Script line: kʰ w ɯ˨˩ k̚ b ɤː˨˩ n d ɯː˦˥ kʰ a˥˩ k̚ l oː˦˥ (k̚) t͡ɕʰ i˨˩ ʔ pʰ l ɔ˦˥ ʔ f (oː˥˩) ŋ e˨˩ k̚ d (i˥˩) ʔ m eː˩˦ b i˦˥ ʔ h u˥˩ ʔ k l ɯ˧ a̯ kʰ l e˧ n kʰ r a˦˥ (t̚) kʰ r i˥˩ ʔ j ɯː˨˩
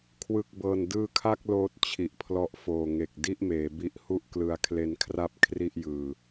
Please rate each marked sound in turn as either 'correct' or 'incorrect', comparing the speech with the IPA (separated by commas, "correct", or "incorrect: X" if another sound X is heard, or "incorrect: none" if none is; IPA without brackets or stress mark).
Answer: incorrect: t̚, incorrect: oː˨˩, correct, incorrect: p̚